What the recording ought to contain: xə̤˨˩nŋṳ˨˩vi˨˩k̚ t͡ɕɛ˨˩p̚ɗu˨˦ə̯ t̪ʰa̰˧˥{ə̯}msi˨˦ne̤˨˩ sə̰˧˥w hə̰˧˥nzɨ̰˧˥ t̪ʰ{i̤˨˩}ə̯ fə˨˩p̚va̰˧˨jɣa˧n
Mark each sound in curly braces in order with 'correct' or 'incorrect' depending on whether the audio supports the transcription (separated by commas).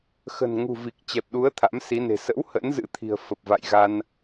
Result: incorrect, correct